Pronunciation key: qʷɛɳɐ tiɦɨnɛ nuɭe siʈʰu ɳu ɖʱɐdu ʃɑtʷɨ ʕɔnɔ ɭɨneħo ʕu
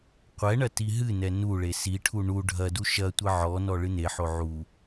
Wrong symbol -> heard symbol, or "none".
ɑ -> ɐ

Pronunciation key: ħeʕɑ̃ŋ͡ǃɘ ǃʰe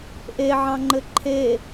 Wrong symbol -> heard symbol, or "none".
ħ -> ʔ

